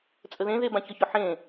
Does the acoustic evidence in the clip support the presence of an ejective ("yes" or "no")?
yes